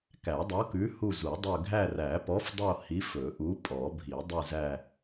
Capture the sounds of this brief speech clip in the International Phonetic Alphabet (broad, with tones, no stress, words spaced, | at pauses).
kæ˨˩˦dˤo˨˥kʉ˨˥hu˦˨ zu˨˩˦dˤø˦˨ ɡʱæ˦˨ræ˨˩˦pɔ˨˥fdˤo˦˨ hi˨˥f ɵ˨˩˦ʔu˨˥ pʼɔ˨˩˦bʱi˨˩˦ dˤʉ˦˨zæ˦˨